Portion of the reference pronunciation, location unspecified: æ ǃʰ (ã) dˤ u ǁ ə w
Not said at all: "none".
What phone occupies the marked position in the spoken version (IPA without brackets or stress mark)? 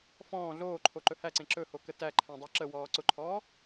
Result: æ̃